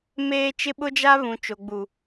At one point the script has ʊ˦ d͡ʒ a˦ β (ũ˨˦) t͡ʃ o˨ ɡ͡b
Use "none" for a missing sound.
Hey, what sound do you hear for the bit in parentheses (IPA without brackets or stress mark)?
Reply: ũ˨